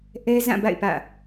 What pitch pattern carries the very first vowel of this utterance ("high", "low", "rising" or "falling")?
high